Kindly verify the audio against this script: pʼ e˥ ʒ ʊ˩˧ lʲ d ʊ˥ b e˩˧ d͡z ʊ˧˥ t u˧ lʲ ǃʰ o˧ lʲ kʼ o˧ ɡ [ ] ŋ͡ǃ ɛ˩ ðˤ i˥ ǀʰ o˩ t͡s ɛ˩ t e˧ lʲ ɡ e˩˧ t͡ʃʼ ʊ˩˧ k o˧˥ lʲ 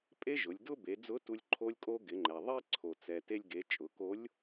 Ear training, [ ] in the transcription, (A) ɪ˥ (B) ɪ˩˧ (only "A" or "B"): B